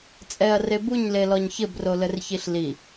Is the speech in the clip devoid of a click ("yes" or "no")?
yes